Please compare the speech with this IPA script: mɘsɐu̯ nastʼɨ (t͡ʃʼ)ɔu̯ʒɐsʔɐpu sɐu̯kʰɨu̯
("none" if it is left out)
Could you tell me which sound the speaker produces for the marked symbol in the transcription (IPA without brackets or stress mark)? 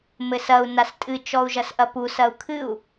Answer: t͡ʃ